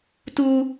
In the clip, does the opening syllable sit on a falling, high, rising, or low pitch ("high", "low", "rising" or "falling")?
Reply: high